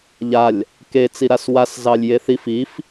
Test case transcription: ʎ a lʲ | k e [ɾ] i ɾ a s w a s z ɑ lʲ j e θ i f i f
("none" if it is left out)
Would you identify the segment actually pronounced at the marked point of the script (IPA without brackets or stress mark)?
t͡s